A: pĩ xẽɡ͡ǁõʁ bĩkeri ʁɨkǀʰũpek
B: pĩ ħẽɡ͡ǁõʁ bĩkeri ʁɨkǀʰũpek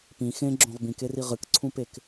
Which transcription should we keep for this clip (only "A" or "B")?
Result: A